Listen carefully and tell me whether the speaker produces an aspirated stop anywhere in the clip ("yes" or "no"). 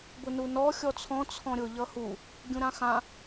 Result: yes